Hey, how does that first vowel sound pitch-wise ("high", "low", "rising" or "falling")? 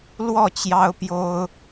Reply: falling